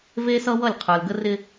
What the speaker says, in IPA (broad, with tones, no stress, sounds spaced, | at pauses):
v e˦ s ʌ˦ w ʌ˦˨ lʲ qʰ ə˞˨ l ɡ ə˦ r ɪ˦